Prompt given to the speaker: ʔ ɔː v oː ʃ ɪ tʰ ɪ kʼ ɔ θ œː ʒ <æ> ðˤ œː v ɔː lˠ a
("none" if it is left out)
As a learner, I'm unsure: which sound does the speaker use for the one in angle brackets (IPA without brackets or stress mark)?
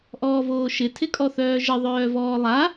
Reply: ə